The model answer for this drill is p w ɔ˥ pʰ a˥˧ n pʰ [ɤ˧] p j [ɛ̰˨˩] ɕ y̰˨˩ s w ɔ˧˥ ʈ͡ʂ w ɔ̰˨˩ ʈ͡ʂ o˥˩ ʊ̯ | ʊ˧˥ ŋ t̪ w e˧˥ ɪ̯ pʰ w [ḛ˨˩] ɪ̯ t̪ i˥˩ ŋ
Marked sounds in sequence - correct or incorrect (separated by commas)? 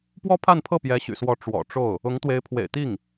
incorrect, incorrect, correct